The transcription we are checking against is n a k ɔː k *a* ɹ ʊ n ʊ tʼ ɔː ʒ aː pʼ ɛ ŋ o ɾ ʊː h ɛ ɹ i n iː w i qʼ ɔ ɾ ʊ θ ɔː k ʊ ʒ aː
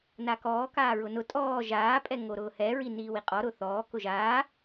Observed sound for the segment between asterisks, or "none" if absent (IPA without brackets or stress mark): aː